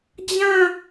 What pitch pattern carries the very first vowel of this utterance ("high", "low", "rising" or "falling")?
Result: falling